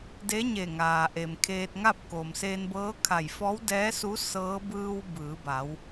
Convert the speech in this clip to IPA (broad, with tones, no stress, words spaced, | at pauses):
de˧˥ɲe˧˩ ŋaː˩ʔe˩mkʰeː˧t̚ ŋa˥˨p̚koː˩mseː˧nbɤː˧˥ kʰa˧˩jfɔː˧˥wdɛː˧˥su˧˥ sɤː˧˥ bɯː˧w bɯː˩˧ba˩˧w